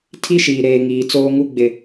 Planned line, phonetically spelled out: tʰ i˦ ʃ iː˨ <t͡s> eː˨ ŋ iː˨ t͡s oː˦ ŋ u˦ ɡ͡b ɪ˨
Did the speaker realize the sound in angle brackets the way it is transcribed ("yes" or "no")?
no